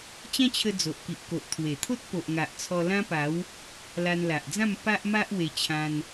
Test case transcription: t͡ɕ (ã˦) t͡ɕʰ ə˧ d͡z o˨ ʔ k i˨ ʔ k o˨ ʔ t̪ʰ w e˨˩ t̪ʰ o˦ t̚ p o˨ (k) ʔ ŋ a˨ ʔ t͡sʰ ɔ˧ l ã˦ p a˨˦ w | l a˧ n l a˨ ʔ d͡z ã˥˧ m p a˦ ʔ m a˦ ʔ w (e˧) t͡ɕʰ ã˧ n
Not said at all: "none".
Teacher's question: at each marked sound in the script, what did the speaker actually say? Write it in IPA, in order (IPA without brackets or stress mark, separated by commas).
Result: ã˦, none, e˧